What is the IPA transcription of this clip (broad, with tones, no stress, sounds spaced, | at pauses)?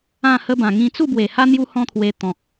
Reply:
ã˥˧ h ə˦ b ã˨˩ ŋ ĩ˧ t͡s u˥˧ b w e˨˩ h a˦ n̪ j u˦ h ɔ̃˦ t̪ʰ w e˧ t̪ ɔ̃˨ k̚